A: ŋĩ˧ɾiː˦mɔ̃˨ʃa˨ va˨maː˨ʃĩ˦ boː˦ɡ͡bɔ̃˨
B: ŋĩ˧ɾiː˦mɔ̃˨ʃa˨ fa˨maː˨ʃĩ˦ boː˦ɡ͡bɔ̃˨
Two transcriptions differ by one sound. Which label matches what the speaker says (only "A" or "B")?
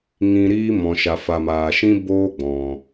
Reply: B